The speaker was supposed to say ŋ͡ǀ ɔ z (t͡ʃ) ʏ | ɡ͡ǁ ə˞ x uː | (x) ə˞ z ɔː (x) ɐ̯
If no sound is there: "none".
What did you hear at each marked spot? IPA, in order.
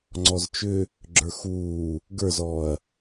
t͡ʃ, ɡ, none

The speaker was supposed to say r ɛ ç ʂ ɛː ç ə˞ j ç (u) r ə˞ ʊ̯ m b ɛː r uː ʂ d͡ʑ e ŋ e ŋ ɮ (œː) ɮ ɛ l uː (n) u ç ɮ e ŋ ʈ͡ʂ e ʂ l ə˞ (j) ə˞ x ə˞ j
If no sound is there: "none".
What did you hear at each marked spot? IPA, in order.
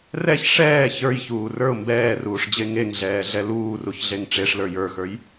uː, ɛː, r, j

